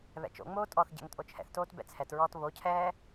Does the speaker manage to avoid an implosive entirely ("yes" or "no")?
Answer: yes